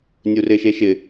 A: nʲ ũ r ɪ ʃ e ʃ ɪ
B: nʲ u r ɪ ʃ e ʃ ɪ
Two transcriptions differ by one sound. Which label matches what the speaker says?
B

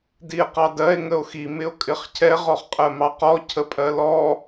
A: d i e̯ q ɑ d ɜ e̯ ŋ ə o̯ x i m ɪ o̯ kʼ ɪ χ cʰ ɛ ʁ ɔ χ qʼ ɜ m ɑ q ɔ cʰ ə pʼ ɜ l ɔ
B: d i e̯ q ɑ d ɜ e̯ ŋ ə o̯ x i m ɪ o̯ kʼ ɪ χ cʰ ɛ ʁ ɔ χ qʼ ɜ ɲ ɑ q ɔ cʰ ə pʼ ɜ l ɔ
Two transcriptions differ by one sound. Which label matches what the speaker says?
A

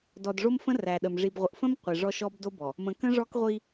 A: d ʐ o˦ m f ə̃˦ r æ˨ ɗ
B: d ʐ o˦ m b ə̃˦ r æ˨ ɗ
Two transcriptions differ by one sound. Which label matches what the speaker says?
A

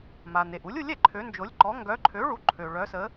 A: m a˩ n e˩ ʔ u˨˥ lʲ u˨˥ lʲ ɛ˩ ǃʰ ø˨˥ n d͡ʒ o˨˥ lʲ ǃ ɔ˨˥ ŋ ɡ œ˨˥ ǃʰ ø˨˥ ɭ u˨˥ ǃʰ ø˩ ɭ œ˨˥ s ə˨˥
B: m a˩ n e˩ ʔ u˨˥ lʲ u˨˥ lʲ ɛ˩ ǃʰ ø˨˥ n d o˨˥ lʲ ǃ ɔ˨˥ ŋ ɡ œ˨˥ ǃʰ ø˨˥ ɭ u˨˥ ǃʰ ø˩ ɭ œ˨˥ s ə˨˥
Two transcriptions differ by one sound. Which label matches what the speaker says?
A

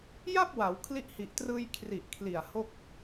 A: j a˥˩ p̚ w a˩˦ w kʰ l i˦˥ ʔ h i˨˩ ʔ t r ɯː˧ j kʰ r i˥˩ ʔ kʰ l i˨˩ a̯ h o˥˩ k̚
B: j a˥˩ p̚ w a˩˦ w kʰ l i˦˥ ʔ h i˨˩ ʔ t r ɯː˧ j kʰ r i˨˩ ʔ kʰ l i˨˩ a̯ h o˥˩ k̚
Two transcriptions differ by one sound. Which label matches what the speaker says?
B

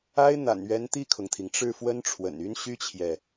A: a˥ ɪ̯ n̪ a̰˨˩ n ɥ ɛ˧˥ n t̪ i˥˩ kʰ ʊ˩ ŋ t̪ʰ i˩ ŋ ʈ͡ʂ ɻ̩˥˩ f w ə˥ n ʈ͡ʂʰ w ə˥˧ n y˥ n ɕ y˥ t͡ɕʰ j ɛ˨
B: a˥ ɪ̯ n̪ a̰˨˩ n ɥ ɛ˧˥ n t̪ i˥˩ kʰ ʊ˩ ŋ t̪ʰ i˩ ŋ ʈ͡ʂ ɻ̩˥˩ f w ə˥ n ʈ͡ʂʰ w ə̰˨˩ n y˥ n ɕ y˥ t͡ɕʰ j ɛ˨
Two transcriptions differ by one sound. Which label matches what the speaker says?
B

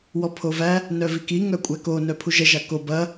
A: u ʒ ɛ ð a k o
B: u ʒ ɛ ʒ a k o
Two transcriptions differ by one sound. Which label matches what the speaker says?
B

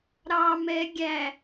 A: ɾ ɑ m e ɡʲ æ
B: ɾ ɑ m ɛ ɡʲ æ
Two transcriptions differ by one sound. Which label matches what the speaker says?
B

